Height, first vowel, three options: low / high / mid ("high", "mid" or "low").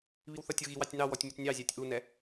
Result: high